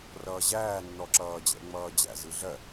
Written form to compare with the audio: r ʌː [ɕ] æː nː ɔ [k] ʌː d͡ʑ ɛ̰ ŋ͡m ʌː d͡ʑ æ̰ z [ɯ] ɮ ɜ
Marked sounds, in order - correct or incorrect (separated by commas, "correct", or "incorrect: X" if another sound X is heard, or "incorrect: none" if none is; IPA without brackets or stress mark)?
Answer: incorrect: ʑ, incorrect: ǁ, correct